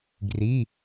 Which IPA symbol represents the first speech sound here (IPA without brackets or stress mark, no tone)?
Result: ɡ